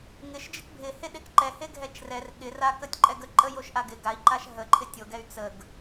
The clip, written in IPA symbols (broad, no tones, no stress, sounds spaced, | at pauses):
ŋ ɪ ʃ d͡ʒ ɪ k bʱ ɪ h e ɗ e k ǃ ɛ h e ɡʱ ɛ t͡ʃ r ɛ r ɠ ɪ r a k ə tʲ ǃʼ ɛ ɡ ə ǃʼ ə j o ʃ ʔ a ɡ ɪ ɡ a i̯ ǃ a ʃ ɦ ə ǃʰ ɪ tʲ o ɡ ɛ y̯ t͡s ə ɡ